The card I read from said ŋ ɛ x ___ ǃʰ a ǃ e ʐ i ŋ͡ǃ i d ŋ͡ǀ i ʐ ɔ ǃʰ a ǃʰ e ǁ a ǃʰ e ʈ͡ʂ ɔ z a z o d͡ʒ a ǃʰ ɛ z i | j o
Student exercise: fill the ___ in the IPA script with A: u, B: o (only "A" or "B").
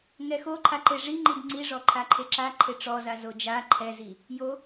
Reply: B